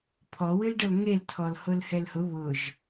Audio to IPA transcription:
pʰ ɔ w ɨ l ɖ ɤ l ŋ e l tʰ ɔ l h ʊ l h ɛ l h ʊ β ʊ ʒ

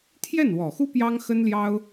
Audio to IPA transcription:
t̪ʰ j ɛ˥˩ n w ɔ˨˩ x u˥ p j ɑ˥ ŋ x ə˥ n l j ɑ˥ ʊ̯

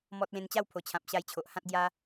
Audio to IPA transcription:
m ɔ˦ t̚ l ẽ˧ n t͡ɕ a˥˧ w pʰ o˨˩ t͡ɕʰ ã˨ p̚ ɕ a˧ j t͡ɕʰ o˨ ʔ h ã˦ t̚ ɡ j a˦

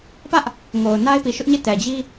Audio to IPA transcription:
p ä˦ ʔ | ŋ o˨ ʊ̯ n a˦ ɪ̯ p i˨ ʃ ʊ˦ ʔ ɲ e˦˨ t ɛ˨ d͡ʑ i˦

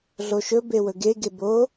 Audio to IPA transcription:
ɮ o ʃ ɵ b e w ɵ ɡ e ɡ e b o

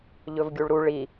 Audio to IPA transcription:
ʎ ɵ v ɡʲ u ɭ ɾ u ɭ i

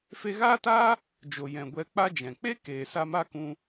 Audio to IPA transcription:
f e˧ ɣ aː˦ t aː˦ | d͡ʒ o˨ j ɛ̃˨ ɡʷ ɛ˧ k͡p a˦ d͡ʒ ɛ̃˨ k͡p e˦ k eː˨ s a˧ m a˦ k ũ˧

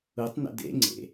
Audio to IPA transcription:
u tˤ n ə̰ d ḛ ŋ͡ǀ ḛ

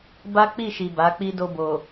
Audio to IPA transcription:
b a˦ k͡p i˦˨ ʃ i˨ b a˨˦ k͡p i˦ d o˧ b o˨

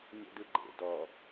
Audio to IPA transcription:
ɲ ḛ d ɯ ɡ͡ǃ ḛ d ɔ

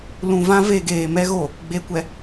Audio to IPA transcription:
l ũ˨ v ã˦ v e˨ ɡ eː˨ m ɛ˦ ɣ o˨ | ɡ͡b e˨ kʷ ɛ˨

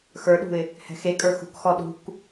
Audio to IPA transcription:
x ə˞ ɗ ṳ ɪ̯ | h ɛ̤ x e kʼ ə˞ x ṳ k x ɔ ɗ ṳ k

